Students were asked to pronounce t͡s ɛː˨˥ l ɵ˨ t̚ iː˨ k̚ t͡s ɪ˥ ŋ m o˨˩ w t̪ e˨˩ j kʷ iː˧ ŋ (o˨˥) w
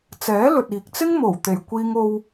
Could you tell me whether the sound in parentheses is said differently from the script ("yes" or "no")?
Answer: yes